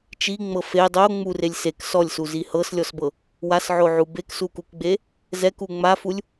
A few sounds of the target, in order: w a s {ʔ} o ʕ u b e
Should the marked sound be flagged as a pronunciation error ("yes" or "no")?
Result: yes